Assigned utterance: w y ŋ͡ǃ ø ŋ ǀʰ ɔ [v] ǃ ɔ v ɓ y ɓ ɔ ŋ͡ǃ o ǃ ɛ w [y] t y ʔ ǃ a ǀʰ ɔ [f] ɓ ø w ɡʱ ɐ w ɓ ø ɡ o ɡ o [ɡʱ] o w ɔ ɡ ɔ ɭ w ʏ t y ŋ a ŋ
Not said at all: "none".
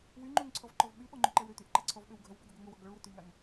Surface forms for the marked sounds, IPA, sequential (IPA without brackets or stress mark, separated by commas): v, ø, v, ŋ